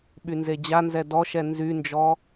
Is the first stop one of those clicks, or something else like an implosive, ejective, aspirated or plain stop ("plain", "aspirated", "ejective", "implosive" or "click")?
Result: implosive